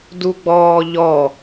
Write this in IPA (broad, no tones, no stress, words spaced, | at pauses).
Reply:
duɡ͡bɔːʎɔ